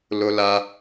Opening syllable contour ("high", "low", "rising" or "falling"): high